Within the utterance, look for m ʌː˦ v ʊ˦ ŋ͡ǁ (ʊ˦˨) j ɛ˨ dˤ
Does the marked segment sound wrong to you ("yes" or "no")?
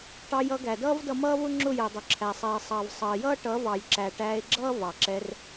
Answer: no